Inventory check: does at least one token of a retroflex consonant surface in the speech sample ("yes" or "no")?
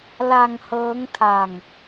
no